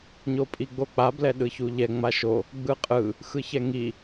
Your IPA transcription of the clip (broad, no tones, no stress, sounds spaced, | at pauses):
ɲ o pʼ i ɡ͡b o k͡p a b l ɛ ɗ ɯ ç u ʎ ɛ ŋ͡m a ʃ o | ɡ͡b ɯ qʼ ɯ | x ɯ ç ɛ ŋ i